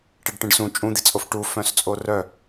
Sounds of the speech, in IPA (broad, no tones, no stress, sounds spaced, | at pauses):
ʈ e ɖ ʈ ẽ ɖ s ũ t͡ʃʼ ũ d̪ i t͡sʼ o f ʈ u f œ̃ s t͡sʼ o r œ